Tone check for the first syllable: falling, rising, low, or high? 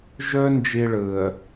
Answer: high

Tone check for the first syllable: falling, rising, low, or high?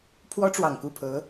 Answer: high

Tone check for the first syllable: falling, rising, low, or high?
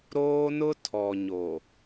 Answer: high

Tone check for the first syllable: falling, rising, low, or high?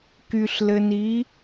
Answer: low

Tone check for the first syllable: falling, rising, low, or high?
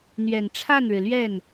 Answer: low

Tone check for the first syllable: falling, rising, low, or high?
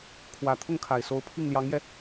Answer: low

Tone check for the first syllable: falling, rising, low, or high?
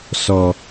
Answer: low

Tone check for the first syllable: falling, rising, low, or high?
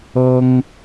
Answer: high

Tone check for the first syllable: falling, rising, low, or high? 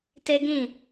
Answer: high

